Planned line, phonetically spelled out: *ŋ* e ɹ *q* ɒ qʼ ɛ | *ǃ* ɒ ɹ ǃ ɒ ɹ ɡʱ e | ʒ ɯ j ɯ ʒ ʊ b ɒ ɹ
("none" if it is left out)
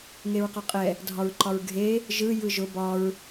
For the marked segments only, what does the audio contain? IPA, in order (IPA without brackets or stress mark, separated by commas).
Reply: ŋ, q, dʱ